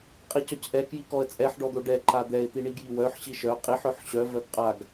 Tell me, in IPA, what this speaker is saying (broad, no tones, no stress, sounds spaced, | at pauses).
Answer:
qʼ i c œ c ʔ ɛ k j i k ɔ ə̯ t͡sʼ ɛ ħ ɖ ɔ d̪ o ɖ ɛ ǃ a d̪ ɛ ɪ̯ t̪ i ɳ i ɡ j i w œ ħ ɕ i ʃ œ qʼ i ħ œ ħ ɕ œ v œ ɡ qʼ a ɡ